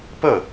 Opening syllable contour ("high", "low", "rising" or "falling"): falling